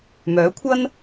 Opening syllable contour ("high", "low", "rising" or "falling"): rising